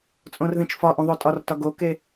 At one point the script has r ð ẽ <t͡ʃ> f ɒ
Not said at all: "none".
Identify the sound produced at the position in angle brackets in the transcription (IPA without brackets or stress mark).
t͡ʃ